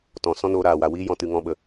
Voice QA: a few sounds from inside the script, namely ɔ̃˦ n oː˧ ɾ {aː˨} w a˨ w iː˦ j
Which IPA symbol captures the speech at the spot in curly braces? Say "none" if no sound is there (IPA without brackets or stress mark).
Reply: aː˨